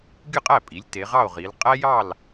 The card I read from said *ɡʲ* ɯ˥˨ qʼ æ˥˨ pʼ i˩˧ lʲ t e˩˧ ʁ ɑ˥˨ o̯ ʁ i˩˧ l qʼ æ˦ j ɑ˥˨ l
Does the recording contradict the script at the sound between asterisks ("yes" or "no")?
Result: no